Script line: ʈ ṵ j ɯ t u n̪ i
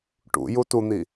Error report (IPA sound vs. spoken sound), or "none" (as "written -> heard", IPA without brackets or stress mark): ɯ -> u